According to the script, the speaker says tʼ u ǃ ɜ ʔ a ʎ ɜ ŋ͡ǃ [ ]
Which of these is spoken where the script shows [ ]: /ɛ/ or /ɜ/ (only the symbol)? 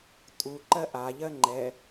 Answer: ɛ